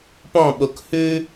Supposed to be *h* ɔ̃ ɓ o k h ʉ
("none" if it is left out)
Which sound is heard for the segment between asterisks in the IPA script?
p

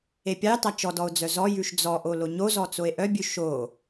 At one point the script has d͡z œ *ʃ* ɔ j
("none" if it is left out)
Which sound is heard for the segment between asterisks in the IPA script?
z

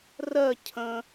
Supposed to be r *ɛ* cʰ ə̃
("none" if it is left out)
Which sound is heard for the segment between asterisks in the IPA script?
ɜ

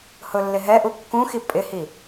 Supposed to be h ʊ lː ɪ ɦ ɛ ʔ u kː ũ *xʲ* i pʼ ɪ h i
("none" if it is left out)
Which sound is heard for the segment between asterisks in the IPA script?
x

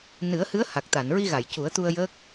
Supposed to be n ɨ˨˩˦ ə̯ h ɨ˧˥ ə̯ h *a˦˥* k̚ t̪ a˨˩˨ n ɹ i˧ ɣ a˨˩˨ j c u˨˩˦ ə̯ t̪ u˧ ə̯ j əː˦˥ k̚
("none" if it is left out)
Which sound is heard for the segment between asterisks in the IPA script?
a˨˩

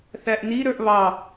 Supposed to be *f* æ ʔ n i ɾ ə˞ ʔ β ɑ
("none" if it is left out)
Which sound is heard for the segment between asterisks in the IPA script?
θ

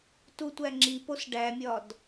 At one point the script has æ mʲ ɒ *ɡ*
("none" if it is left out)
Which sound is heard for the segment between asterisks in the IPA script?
d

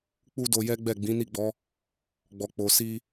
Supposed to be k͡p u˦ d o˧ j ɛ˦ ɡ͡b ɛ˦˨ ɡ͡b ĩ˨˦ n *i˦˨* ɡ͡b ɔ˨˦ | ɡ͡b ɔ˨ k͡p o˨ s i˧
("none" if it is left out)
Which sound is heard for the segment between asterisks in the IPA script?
i˦˨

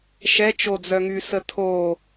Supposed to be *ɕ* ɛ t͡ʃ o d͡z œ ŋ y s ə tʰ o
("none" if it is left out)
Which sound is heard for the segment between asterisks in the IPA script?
ʃ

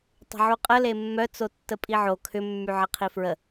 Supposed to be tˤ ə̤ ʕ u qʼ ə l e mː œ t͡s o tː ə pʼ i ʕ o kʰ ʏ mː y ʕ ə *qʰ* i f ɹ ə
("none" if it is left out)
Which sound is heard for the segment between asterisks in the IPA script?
qʰ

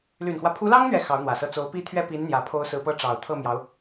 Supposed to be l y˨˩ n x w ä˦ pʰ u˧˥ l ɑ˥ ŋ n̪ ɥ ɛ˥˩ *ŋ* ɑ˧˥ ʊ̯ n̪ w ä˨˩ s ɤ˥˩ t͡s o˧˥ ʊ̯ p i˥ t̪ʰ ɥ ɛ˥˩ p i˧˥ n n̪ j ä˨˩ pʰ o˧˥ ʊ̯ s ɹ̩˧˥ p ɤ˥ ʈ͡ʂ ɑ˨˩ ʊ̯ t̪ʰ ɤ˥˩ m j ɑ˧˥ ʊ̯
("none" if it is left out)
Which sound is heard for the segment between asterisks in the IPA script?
x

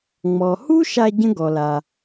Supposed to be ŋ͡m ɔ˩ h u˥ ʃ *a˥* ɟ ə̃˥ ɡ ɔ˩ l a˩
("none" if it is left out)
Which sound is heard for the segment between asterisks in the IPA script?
a˧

